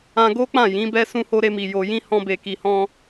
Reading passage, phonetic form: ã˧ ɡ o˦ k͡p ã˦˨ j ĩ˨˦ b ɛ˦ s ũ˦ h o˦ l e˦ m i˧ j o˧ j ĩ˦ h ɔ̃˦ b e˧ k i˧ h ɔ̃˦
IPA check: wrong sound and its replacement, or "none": l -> ɾ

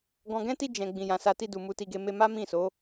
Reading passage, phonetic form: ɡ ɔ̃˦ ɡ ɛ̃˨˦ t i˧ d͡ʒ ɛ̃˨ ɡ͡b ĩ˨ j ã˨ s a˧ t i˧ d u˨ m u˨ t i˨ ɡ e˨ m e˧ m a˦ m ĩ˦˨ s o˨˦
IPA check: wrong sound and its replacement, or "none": ɔ̃˦ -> ɔ̃˨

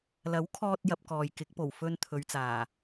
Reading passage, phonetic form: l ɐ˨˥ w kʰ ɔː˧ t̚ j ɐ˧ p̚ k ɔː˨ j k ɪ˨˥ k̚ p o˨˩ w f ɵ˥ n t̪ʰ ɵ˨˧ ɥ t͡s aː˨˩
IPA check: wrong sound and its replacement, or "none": none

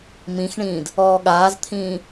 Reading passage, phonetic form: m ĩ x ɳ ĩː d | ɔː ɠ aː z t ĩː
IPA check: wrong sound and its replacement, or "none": t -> t̪ʰ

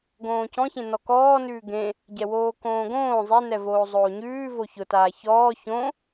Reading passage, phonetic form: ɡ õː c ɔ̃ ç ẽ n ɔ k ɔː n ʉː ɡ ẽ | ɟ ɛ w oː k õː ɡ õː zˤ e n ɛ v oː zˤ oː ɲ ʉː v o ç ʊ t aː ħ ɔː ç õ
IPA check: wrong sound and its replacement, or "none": ħ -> ç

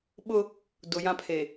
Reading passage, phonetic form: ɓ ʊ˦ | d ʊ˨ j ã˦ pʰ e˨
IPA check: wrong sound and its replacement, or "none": none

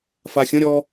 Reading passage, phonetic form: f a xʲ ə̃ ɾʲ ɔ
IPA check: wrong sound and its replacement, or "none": none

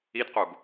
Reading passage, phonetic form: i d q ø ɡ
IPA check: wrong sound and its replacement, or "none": ø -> u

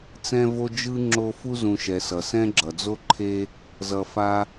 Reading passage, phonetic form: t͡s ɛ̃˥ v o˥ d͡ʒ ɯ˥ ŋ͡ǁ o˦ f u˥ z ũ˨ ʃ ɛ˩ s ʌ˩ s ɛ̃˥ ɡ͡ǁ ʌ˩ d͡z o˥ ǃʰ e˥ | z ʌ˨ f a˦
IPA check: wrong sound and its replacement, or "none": none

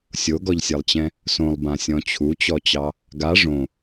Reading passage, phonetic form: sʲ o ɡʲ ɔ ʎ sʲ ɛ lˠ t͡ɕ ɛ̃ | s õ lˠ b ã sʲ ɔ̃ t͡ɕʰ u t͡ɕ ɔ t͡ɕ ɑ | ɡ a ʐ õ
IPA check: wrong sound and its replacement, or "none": ɡʲ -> ɡ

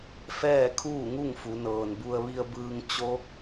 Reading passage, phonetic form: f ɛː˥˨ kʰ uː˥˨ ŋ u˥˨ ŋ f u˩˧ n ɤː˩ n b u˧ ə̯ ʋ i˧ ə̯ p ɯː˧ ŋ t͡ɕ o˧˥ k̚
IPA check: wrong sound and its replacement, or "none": p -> b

